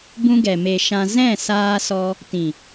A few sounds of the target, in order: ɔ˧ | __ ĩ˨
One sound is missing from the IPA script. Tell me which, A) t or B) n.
A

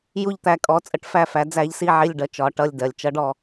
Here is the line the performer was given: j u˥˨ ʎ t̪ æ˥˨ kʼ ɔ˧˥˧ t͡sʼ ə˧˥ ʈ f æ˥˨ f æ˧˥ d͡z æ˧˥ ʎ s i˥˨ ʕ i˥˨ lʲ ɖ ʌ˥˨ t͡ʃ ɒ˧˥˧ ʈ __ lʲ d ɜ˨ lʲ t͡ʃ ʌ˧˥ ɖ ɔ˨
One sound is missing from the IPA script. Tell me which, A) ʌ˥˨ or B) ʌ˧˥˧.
A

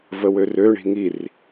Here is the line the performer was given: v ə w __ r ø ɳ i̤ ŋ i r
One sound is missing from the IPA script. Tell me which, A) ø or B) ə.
A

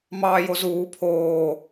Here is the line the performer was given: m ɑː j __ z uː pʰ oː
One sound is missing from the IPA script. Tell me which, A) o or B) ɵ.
A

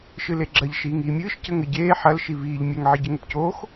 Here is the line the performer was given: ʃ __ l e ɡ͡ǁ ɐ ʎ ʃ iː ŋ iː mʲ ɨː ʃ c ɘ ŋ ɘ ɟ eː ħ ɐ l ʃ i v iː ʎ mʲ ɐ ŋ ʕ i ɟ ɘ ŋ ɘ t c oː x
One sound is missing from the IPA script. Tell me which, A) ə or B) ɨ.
B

